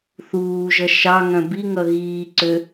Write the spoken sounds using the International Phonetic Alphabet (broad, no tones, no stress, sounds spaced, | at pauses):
θ uː ʒ ʌ ʃ ɑ ŋ œ̃ b i ŋ ʌ ɣ iː ǀ ø